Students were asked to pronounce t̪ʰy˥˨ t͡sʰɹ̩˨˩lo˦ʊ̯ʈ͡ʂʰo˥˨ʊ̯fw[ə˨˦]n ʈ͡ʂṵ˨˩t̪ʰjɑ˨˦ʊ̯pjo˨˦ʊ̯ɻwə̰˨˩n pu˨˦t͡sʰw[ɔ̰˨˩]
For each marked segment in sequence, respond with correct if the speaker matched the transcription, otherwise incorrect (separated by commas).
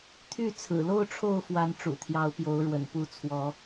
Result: incorrect, incorrect